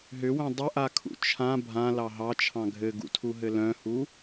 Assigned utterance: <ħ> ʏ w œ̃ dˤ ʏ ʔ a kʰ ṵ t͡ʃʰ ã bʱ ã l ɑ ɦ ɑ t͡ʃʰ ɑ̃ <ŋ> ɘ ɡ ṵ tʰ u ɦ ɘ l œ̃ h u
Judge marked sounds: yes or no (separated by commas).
no, no